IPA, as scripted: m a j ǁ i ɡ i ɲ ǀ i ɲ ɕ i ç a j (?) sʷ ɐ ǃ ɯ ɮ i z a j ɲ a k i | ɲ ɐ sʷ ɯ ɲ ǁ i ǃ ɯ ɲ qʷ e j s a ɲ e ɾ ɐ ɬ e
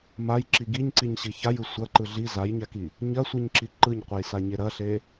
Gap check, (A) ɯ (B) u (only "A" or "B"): A